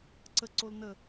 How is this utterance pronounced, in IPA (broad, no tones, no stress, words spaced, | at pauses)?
ǀə ǀolnə